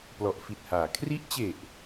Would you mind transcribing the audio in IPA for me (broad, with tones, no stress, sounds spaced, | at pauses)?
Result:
p l ɔ˨˩ ʔ f i˨˩ t̚ h aː˩˦ kʰ r i˦˥ ʔ t͡ɕ e˨˩ ʔ